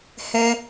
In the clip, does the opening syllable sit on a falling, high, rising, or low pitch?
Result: high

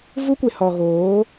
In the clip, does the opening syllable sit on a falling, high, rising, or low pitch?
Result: high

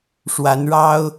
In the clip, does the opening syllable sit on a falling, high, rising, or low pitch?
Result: rising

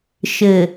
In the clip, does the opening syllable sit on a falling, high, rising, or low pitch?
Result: low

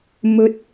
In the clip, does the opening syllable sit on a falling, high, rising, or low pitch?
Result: rising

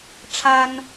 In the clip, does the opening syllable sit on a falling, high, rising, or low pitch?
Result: high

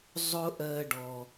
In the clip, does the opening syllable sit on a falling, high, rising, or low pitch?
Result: high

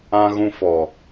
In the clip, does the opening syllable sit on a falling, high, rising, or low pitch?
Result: high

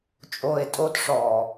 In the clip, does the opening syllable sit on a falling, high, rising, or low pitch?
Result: low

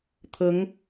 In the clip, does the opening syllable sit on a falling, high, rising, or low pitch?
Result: rising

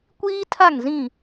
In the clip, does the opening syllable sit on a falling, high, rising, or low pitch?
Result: high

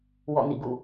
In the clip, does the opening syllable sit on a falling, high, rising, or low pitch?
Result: falling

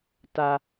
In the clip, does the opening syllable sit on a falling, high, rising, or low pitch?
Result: low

